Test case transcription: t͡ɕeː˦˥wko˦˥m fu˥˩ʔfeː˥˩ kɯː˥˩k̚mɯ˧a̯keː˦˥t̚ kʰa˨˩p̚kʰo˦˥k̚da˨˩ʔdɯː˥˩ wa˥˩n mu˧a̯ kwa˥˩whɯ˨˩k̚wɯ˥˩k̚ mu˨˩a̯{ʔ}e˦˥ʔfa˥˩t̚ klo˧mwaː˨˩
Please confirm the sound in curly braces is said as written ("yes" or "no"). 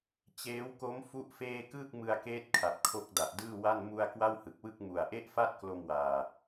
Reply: yes